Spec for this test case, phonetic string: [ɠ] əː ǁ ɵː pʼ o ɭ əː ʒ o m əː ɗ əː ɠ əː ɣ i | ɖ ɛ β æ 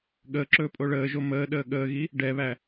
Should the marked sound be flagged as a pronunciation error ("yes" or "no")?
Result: no